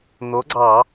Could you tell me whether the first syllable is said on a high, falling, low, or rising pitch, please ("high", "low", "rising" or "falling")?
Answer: rising